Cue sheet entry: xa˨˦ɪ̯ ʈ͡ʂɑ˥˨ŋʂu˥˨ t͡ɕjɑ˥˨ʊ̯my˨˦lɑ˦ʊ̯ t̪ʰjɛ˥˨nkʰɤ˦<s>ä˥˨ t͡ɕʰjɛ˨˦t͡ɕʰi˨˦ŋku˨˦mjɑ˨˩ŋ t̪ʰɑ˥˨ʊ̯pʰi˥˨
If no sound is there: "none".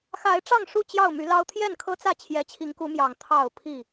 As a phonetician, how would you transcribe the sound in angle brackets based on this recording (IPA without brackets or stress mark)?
t͡s